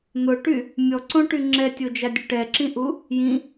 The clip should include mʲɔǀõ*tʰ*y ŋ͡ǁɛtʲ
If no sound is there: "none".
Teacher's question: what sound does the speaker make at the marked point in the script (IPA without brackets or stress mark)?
ʈ